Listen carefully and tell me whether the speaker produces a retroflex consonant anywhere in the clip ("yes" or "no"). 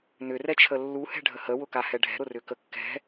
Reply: yes